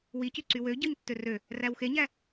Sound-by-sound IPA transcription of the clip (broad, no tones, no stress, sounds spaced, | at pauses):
w i c y ǀ y w ø ɟ ɯ ɲ tː ø r ø | r æ w x e ɲ æ